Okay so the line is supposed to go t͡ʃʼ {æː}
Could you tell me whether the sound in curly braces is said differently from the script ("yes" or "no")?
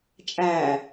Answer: no